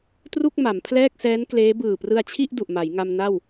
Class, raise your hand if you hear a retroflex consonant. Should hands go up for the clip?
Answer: no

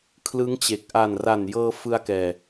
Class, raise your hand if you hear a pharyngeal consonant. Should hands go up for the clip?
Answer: no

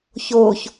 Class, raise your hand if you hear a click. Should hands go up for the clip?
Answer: no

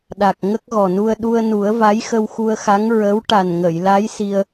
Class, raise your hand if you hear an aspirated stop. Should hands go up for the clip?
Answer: no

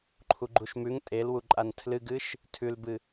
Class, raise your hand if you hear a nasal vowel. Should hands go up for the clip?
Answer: no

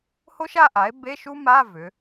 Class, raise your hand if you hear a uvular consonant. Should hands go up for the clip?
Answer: no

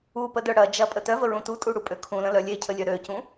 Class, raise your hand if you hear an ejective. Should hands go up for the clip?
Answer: yes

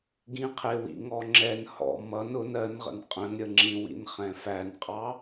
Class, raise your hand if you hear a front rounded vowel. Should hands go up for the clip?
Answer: no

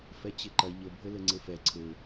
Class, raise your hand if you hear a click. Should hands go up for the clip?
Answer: yes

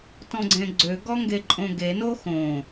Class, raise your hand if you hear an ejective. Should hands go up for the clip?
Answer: yes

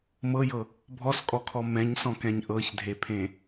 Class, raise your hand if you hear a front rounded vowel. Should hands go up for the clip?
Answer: no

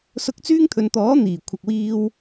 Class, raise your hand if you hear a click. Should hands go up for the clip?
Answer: no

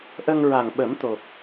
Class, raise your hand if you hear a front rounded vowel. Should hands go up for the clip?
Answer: no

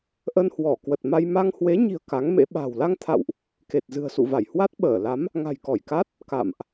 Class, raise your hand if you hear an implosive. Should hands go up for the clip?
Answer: yes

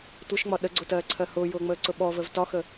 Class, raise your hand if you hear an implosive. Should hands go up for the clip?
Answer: yes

